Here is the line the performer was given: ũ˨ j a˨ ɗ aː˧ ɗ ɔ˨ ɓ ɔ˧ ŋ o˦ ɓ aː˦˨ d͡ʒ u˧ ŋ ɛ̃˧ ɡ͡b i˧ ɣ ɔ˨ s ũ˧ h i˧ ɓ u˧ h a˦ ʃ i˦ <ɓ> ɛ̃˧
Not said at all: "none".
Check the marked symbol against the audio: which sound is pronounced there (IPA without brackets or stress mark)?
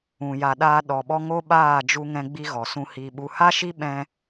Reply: ɓ